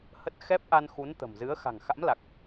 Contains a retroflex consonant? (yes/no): no